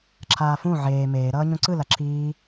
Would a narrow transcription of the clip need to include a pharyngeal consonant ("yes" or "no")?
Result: yes